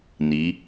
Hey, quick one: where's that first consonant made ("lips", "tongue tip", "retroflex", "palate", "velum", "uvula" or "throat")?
tongue tip